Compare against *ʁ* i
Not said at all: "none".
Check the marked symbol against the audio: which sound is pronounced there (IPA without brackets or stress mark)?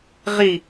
ʁ